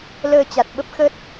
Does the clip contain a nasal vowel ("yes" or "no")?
no